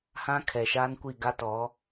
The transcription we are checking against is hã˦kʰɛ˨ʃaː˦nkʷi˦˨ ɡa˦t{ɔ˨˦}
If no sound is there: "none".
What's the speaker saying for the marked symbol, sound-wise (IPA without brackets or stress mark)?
ɔ˨˦